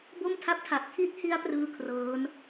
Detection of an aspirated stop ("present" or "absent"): present